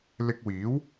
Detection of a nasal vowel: absent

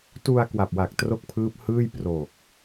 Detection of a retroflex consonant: absent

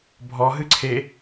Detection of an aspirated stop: present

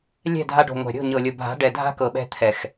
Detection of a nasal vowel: absent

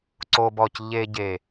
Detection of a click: present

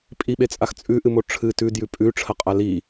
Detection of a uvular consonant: present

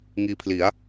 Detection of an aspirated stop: present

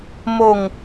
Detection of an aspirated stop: absent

